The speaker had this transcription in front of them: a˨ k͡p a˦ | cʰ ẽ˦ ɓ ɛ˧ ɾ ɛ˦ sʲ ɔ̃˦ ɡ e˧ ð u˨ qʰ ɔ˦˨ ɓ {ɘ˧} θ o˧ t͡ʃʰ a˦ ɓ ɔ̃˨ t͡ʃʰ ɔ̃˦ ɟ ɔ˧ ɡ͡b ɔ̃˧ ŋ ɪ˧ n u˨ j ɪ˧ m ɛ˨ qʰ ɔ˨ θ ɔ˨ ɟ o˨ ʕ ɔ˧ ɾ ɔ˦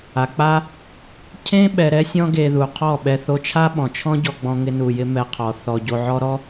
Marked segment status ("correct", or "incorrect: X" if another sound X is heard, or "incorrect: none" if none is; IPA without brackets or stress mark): incorrect: ɛ˧